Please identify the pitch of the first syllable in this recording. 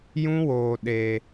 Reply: high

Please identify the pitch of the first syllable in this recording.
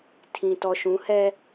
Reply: low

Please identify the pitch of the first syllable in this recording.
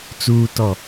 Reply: low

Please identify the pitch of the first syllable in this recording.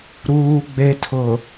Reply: high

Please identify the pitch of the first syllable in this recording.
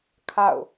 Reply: falling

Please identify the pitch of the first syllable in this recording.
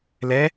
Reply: rising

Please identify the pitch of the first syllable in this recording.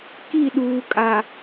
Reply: falling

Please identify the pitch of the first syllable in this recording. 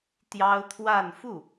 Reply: high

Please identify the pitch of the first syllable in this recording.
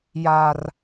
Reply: high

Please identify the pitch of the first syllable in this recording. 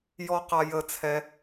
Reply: high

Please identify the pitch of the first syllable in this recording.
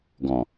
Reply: low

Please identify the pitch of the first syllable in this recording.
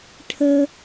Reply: high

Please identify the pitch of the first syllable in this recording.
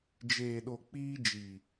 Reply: low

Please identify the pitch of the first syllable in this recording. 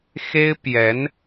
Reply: high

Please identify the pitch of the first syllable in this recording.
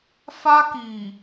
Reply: high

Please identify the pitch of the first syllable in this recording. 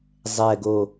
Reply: low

